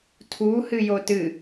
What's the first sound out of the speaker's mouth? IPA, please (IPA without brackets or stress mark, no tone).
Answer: tʰ